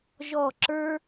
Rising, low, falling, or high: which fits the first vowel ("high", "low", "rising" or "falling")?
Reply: falling